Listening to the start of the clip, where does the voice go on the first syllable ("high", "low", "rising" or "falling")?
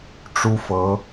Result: high